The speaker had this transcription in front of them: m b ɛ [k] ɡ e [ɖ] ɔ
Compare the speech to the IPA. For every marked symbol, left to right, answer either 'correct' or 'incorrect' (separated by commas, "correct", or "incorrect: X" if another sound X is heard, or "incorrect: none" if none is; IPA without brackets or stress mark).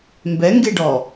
incorrect: ŋ, correct